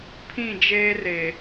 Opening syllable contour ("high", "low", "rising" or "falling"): falling